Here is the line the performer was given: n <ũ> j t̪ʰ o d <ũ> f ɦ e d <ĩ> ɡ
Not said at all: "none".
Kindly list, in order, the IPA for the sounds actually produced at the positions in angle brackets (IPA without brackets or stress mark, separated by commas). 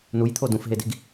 u, ũ, i